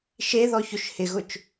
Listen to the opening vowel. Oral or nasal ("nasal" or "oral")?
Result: oral